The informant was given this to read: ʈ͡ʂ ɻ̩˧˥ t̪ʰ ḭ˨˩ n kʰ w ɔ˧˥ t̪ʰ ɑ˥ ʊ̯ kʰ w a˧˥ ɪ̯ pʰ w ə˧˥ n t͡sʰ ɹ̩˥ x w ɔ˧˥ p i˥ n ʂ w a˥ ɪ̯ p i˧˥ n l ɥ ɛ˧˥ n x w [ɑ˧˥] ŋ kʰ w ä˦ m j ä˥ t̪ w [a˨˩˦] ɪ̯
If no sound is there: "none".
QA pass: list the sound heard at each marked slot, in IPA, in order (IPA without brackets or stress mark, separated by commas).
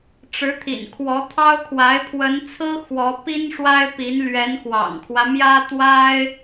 ɑ̰˨˩, a˥